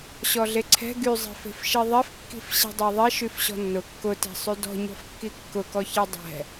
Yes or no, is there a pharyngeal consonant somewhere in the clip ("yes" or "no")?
no